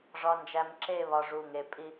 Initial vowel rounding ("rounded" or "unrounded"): rounded